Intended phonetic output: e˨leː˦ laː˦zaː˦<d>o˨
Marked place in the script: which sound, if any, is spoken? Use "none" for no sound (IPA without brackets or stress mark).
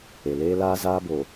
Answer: b